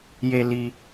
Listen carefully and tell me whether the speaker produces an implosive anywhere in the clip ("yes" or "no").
no